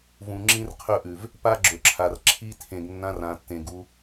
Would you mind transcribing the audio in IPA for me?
v ũ˨ ŋ͡ǁ ĩ˦ r qʰ ɵ˦˨ ʔ ʉ˨ v | p a˦ ɡ͡ǁ ɵ˨ ǁʰ a˨ r ǁʰ i˦ tʰ ẽ˨ ɡ nː ã˦ r ã˨ tː ẽ˨ ɡ u˦

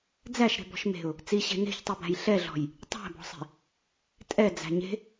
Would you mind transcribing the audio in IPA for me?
d͡z æ ʃ ɾ e̤ b ɔ̤ ʃ m e̤ ʊ̯ | t͡s i ɕ e̤ n e̤ ç tˤ i b æ̤ j ɬ ɛ ɮ ɔ̤ j | tˤ æ̤ b ɔ̤ sˤ i̤ | tʼ ɛ d͡z æ̤ ɲ e̤

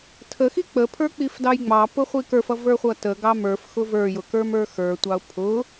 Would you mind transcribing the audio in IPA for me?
tʰ ə x i k͡p ə pʰ ə˞ k͡p i f d ɑ j ŋ͡m ɑ p ʊ χʷ i k ə˞ f ʌ v ə˞ χʷ ʌ t ə ɡ ɑ m ə˞ f x ʊ v ə˞ j ʊ k ə˞ m ə˞ x ə˞ tʷ ɑ ʊ̯ pʰ ʊ

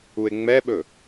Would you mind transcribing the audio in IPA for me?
u e̯ ŋ͡m ɛ ɓ ɵ

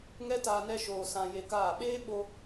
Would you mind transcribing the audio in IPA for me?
ŋ ɛ˦ t aː˧ n ɛ˧ ʃ oː˨ s ã˨ j e˧ k aː˦˨ ɓ eː˦ ɓ o˧

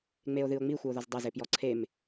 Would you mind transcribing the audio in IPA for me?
ŋ͡m e o̯ ð ɨ o̯ ŋ͡m i xʷ ɘ o̯ ð ɔ z dˤ ɐ z e p j ɔ ǀʰ e m

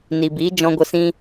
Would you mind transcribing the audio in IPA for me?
n i˨ b iː˨˦ d͡ʒ ɔ̃˧ ɡʷ ə˧ s ĩ˦

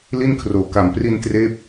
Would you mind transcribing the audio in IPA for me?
l i˥˩ n kʰ r oː˨˩ k a˨˩ m p r i˧ n t r eː˦˥ p̚

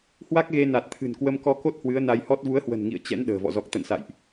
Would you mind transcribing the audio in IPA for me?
h w a˦˥ k̚ ɣ e˧ n a˨˩ t̚ t̪ʰ ɨ̤˨˩ n k w ə˧ m k ɔ˧ k o˦˥ t̚ h w ɨ˨˦ ə̯ n a˧ j h ɔ˦˥ t̚ v u˨˦ ə̯ h w ə̤˨˩ n ŋ ḭ˧˨ ə̯ t͡ɕ ɛ̰˧˥ n ɗ ə̤ː˨˩ v ɔ̰˧˨ z ɔ˨˩ k̚ t̪ ə̰˧˨ n s a̰˧˨ j ʔ

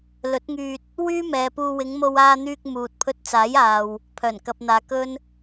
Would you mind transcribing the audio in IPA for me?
l ɵ˨˥ t̚ ŋ yː˧ t̚ | w yː˥ m ɛː˨ p uː˧ w ɪ˨˧ ŋ m o˧ w aː˧ n̪ yː˧ k̚ m uː˨ t̚ pʰ ɵ˧ t̚ t͡s aː˨˥ j aː˨ w | pʰ œː˨˩ n k ɐ˨ p̚ n̪ aː˨ k ɵ˥ n

